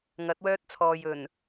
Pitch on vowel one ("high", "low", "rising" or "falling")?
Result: rising